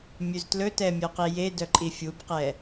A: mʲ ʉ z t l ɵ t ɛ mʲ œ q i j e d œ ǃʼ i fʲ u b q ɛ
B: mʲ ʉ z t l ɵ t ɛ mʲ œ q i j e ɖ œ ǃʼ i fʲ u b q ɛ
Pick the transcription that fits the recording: A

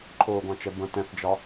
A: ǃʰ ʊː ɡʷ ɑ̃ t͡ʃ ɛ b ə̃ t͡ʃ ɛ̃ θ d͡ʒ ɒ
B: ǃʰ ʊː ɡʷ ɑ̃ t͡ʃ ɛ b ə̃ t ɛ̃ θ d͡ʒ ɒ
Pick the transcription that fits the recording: B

